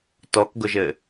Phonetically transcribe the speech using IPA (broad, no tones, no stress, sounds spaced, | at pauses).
t ɔ k ɡ ʊ ʒ ɘ